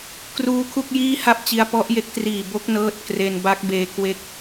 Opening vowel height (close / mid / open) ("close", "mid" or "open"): close